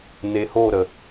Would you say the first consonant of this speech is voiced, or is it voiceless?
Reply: voiced